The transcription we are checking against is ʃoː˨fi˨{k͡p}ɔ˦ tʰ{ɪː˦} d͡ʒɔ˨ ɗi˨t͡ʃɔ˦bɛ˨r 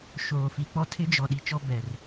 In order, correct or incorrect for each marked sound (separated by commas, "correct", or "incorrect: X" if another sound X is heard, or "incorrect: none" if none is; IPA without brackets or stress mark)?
correct, incorrect: ɪ˦